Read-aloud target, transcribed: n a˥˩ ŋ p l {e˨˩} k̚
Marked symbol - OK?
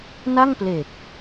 yes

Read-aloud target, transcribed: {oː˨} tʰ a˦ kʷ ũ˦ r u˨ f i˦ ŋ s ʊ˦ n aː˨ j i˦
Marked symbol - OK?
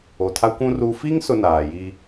no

